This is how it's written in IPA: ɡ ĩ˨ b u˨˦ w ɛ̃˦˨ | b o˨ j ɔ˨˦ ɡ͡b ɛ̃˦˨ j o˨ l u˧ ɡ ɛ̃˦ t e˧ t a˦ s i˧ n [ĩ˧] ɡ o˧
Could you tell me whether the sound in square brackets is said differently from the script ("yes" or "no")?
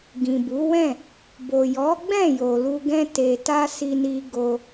yes